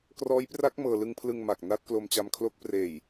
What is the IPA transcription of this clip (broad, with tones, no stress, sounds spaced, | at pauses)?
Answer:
k r ɔː˦˥ j p r a˦˥ k̚ m ɤː˧ l ɯ˧ ŋ pʰ l ɯ˧ ŋ m a˨˩ k̚ n a˦˥ t̚ k l o˧ m t͡ɕ a˧ m kʰ l o˦˥ k̚ p r eː˨˩ j